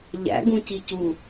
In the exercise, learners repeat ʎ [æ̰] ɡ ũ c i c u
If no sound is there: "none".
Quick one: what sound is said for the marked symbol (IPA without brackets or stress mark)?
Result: æ̰